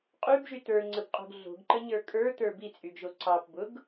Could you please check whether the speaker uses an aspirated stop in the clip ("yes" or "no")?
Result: no